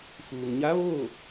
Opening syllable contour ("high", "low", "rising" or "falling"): low